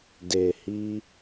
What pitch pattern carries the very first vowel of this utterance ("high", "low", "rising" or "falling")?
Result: low